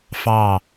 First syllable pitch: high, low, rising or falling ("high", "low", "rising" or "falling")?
falling